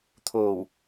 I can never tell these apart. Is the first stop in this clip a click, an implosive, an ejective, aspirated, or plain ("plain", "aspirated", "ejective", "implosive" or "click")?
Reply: aspirated